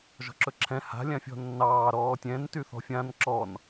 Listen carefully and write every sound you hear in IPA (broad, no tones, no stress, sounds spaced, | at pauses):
ʒ ɔ̤ ǁ ɵ ǁʰ ɛ̃ h a̤ lʲ ã fʲ ɔ̤ nː ɑː ɾ ɔː tʲ ɛ̃ n t y θ ɔ̤ fʲ ã n ǁ ɔ n